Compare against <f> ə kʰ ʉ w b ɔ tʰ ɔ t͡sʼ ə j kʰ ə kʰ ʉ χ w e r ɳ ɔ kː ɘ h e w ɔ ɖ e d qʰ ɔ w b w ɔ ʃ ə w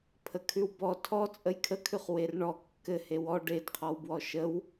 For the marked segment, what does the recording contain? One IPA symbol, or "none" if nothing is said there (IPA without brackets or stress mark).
pʰ